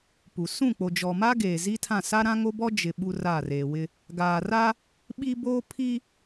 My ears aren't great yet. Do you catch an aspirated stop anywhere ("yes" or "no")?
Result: yes